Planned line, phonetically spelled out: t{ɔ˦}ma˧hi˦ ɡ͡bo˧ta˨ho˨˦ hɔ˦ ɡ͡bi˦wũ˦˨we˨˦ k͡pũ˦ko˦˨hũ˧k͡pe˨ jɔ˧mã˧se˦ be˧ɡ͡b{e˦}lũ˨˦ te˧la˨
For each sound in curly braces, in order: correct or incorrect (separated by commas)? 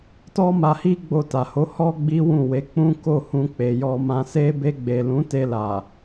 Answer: correct, incorrect